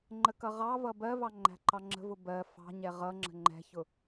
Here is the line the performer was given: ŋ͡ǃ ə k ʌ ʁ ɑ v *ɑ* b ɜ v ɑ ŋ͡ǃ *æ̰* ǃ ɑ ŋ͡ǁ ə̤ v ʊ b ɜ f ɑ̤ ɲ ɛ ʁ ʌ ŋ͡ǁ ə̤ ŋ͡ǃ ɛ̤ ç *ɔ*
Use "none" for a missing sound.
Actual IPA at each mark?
ʌ, æ̤, ʊ

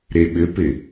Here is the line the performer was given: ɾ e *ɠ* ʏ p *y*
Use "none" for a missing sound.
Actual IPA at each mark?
ɓ, ɪ

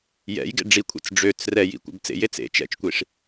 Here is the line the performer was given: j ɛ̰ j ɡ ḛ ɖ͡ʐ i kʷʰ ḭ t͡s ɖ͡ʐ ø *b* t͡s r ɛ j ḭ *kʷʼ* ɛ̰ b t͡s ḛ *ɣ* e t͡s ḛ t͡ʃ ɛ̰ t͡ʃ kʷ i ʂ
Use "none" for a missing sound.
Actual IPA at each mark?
none, kʷ, j

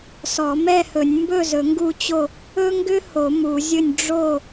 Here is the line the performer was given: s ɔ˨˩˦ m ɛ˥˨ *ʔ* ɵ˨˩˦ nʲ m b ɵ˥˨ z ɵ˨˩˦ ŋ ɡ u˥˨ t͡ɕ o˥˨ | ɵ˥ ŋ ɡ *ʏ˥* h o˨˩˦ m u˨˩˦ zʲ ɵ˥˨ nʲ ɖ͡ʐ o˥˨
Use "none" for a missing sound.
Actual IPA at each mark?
h, ʏ˥

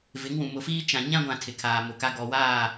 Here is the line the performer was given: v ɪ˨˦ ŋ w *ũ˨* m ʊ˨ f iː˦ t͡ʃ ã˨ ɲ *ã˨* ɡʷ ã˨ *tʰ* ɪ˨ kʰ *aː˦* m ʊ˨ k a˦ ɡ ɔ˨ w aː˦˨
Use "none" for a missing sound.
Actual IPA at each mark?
ũ˨, ã˦, tʰ, aː˨

